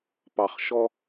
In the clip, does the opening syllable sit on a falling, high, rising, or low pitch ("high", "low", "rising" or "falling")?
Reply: low